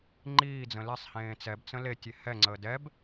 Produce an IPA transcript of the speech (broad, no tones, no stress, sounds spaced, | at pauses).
ŋ͡ǃ iː d͡z ə̃ l e sˤ h ẽː t͡s ɛ b t͡s ə̃ l e tʲ e h ɛ ŋ͡ǀ əː d ɛ b